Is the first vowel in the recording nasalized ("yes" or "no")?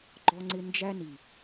no